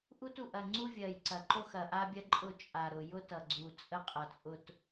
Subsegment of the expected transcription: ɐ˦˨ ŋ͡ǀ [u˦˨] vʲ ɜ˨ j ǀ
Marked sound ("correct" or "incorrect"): incorrect